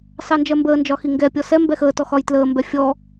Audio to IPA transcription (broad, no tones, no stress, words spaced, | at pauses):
sɑnd͡ʒɜmbəːnd͡ʒɒ xiŋɡɛpʲɔ sɛ mbɛxəːtɔ xɒjtləːmbɛ fʲɔ